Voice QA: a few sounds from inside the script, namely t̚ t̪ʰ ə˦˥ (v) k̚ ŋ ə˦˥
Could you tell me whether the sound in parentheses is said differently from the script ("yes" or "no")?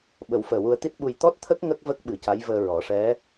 yes